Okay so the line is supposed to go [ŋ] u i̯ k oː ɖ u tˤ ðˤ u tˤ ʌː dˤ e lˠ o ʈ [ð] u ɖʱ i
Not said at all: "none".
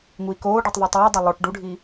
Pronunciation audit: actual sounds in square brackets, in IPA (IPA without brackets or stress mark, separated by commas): ŋ, ɖ